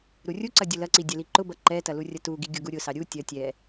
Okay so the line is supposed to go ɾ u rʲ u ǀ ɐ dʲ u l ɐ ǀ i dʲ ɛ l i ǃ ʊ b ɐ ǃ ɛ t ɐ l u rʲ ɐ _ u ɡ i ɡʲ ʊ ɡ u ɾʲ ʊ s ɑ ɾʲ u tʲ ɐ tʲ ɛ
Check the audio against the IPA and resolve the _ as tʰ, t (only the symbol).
t